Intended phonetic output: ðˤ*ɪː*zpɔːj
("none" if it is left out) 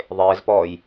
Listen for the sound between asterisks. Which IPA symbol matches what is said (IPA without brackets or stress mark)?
ɪː